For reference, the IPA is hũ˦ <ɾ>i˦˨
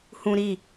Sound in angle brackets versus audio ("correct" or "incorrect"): correct